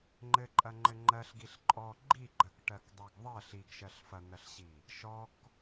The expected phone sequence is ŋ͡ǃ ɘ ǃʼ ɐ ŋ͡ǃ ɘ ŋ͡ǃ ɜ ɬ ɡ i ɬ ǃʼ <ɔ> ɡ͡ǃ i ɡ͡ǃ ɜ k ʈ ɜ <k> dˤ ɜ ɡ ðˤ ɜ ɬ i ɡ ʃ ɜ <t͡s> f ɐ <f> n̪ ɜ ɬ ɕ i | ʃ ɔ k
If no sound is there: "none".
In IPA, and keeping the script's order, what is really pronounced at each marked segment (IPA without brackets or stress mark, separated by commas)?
ɔ, k, ɬ, none